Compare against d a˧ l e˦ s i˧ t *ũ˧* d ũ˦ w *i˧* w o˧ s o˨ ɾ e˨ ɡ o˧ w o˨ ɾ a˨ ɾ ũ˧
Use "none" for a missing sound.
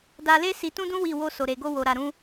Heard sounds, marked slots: ũ˦, i˦˨

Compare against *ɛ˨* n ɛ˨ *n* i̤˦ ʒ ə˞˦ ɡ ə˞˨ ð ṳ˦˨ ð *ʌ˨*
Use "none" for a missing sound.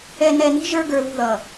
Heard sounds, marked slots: ɛ˨, n, ʌː˨

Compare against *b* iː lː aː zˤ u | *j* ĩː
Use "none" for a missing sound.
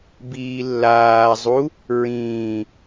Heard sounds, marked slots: b, ɹ

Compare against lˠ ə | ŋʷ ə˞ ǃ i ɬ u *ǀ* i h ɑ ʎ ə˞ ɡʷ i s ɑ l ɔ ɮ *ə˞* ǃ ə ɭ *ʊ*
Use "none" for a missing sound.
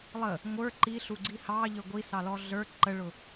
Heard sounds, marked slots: ɡ͡ǀ, ə˞, ʊ

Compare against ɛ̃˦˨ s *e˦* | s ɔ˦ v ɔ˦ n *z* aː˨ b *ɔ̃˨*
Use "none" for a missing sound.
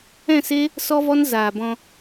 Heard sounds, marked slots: e˦, z, ɔ̃˧

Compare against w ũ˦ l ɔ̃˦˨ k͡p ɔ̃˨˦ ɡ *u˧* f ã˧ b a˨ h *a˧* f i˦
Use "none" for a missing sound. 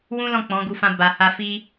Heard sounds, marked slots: u˧, a˧

